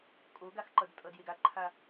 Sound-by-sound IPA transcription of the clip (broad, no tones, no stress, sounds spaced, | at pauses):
kʼ o ɡ a x ǃ ʌ d tʼ ʌ d j e ɡ a ǃʰ a